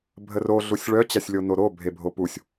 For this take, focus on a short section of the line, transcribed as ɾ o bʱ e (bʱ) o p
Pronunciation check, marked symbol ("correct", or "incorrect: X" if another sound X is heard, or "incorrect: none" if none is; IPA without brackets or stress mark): correct